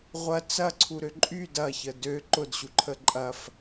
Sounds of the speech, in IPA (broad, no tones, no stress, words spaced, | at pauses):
ʁʷɐ t͡sɐǀʰuɾø ǃʼy dɐçə dø ǃʊdɕuǃʰə ǃʼɐf